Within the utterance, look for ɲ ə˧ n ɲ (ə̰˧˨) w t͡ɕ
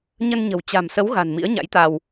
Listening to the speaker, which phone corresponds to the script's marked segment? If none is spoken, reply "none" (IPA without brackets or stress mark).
ə̤˨˩